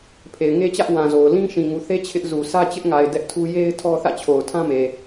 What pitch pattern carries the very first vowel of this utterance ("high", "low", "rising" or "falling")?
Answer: low